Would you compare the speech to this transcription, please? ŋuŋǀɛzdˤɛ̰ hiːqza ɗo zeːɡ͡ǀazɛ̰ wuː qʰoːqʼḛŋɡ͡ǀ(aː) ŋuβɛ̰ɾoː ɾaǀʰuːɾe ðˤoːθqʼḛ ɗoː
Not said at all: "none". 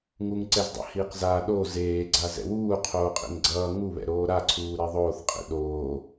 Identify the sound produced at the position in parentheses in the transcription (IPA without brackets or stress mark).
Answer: ʌː